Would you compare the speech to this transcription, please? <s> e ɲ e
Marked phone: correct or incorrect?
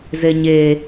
incorrect